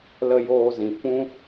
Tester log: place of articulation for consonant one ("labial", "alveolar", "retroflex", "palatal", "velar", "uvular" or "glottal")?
alveolar